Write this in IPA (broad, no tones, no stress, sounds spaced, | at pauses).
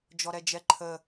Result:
d͡ʒ ɔ ɾ ɛ d͡ʒ ɛ ǃʰ ə